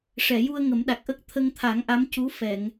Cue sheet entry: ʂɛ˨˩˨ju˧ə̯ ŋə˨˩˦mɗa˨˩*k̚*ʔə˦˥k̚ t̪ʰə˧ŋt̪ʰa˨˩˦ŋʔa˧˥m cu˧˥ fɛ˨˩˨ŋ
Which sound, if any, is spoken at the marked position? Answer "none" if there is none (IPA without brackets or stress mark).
k̚